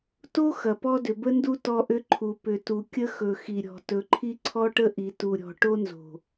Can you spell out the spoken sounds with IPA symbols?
t o˦ x ɐ˨ p ɔ˦ d ʏ˨ b ə˦ n d u˦ t ɔ˦ ʔ ʏ˦ ǃʰ u˨ p ʏ˨ t u˨ kʲ ə˦ x ɵ˨ x i˨ ɾʲ ɔ̤˨ t ɵ˨ ǃʰ i˦ ǀʰ ɔ˦ ʈ ə˦ ʔ i˨ t u˨ ɾʲ ɔ̤˨ ʈ o˦ n z o̤˨

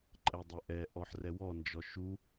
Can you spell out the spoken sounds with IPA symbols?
ǃʼ ɛ dˤ ɛ ʔ ɛ ʔ ɔ ħ r ɛ w ɔ n d͡ʒ ɔ ʃ u

